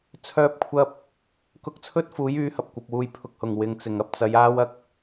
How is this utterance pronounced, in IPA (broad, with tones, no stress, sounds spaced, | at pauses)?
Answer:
t͡sʰ œː˧ p̚ kʷʰ ɐ˧ p̚ | k ʊ˧ k̚ t͡sʰ ɵ˥ t̚ f uː˨˥ j yː˨˥ h ɐ˨ p̚ kʷ ɐ˨ p̚ w uː˧ j pʰ ʊ˨˥ k̚ h ʊ˨˩ ŋ w ɪ˨˧ ŋ t͡s ɪ˨˩ ŋ ɐ˨ p̚ t͡s ɐ˨˧ j aː˥ w ɐ˧ k̚